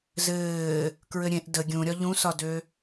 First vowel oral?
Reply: yes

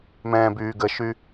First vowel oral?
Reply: no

